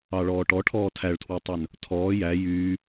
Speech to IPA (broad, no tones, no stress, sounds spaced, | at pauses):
ɑ ɭ ɔː ʈ ɔ ʈʰ ɔː tʰ æ ɭ tʰ w ø tˤ œ n | tʰ ɔː j æ j yː